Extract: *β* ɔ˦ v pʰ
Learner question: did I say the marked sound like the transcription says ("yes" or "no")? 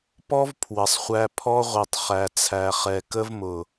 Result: no